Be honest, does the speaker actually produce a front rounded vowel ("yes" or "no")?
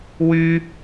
yes